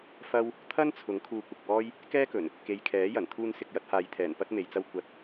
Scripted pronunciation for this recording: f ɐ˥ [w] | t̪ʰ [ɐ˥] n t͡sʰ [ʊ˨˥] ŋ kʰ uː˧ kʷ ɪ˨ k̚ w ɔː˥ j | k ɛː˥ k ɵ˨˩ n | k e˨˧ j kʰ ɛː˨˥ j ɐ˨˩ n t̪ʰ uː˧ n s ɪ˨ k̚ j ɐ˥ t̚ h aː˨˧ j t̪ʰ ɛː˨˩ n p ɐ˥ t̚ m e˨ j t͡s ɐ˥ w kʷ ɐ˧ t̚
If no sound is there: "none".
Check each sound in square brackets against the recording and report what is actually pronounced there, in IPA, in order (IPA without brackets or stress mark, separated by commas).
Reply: w, ɐ˥, ʊ˨˥